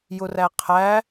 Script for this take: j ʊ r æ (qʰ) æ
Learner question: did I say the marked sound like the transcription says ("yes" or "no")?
yes